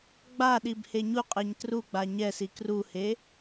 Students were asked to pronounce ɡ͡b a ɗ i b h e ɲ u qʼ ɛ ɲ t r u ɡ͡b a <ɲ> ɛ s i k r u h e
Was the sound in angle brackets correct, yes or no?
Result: yes